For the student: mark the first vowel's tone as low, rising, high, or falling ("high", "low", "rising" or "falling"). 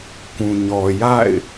low